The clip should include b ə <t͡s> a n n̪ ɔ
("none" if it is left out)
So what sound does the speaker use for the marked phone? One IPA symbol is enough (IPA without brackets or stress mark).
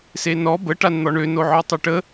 ʈ